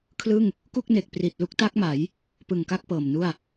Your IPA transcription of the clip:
kʰ l ɯ˥˩ ŋ | k u˥˩ k̚ n e˨˩ k̚ p r i˨˩ t̚ l u˦˥ k̚ t a˦˥ k̚ m a˩˦ j | p ɯ˨˩ ŋ k a˥˩ k̚ p ɤː˨˩ m n u˥˩ a̯

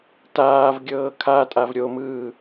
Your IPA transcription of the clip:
t aː v ɡʲ ɤː kʰ a tʼ a v ɾʲ o m ɯː

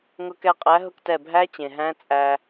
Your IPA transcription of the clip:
ŋ ʊ˧ k ɛ˧ qʼ æ˨˥ ɦ ʊ˧ k t ɛ˧˩ bʱ æ˦˥ t͡ɕ ẽ˩ ɦ æ̃˦˥ t͡sʼ æ˧

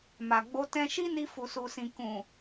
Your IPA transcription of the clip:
m a˨ ɡ͡b o˧ t ɛ̃˧ ʃ i˦ n i˧ f u˨ s u˨ s ĩ˨ k ũ˨

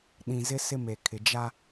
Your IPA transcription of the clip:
ɗ ĩ˨ z ɪ˦ s ɪ˦ m e˨ kʰ ɪ˨ d͡ʒ a˦

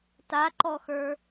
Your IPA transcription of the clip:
t a ǃ ɔ x ə˞

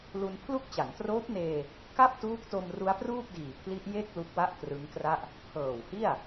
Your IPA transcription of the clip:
l u˧ n pʰ l u˥˩ k̚ t͡ɕ a˩˦ n t r oː˦˥ p̚ n eː˧ | k a˥˩ p̚ t uː˦˥ k̚ t o˧ m r u˦˥ a̯ p r uː˥˩ p̚ d iː˨˩ pʰ l i˦˥ ʔ j e˥˩ k̚ l u˦˥ k̚ w a˥˩ ʔ k r ɯ˦˥ ŋ k r a˥˩ ʔ | pʰ ɤː˨˩ w h i˥˩ a̯

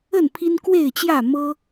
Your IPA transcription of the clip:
ə˥˨ n pʰ i˦ n k w e˥˨ ɪ̯ t͡ɕ j ä˥˨ m ɤ˦

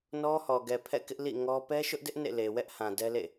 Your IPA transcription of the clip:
n ɔ˦ h ɔ˨ ɡ ɛ˨ pʰ ɛ̰˦˨ k ɪ˦ ʔ l ḭ˦˨ ŋ ɔ˦ p ɛ˦ ʃ ʊ˦ ʔ d ɪ˦ ʔ n ḛ˦˨ l e˨ w ɛ˦ ʔ h ã˨ d ɛ˦ l ḛ˦˨

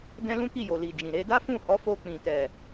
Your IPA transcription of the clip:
d ɛ̃˦ l ũ˦ k i˦˨ j o˨ l i˨ d͡ʒ ĩ˨ ɾ e˧ d a˦ f ũ˦˨ h ɔ˨˦ f o˧ k͡p ĩ˨ t ɛ˨

